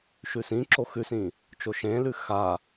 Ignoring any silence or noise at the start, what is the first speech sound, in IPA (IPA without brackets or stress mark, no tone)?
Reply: ʃ